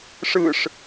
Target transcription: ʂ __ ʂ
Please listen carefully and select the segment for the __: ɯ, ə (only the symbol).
ɯ